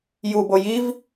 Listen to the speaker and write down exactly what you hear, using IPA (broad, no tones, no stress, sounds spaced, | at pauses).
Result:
j u b o j i v